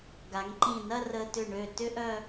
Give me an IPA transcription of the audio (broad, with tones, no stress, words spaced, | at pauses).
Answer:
ɡa˩˧ŋǃĩ˧˩ nɐ˥˧rəː˧tʏ˧˩ ɳø˧˩tʏ˥ ʔœ˧